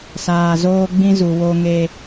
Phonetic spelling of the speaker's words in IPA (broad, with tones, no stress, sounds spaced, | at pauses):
s aː˨ z oː˦ ɡ͡b ĩ˦ z u˨ w o˦ ŋ e˦